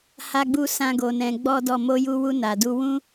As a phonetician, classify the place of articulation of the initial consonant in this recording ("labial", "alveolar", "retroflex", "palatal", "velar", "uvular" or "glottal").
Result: glottal